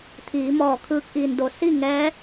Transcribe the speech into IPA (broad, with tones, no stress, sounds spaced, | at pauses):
t̪ʰ iː˩˧ m ɔː˧˩ kʰ ɯː˧ k̚ ʔ iː˩ n d o˩ s i˥˨ ŋ ɛː˧˥